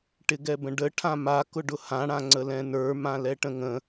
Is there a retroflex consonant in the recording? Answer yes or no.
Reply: yes